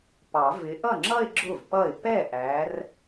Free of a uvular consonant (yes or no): yes